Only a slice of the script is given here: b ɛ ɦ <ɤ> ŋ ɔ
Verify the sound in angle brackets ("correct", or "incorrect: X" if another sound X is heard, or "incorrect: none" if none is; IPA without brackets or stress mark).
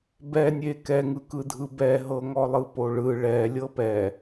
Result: correct